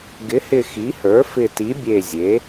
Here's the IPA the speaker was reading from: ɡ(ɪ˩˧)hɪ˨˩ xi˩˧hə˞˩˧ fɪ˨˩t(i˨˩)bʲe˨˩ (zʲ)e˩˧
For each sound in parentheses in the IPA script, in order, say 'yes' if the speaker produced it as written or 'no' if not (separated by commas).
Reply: yes, no, yes